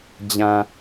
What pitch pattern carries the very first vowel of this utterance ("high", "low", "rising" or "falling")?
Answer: low